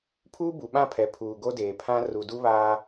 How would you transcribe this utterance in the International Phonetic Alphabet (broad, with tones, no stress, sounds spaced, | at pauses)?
pʰ uː˦ b u˨ ɓ ã˦˨ pʰ ɛ˨ pʰ uː˨ ɡ o˦ d eː˨ pʰ ã˦ r u˨ d u˦ β aː˦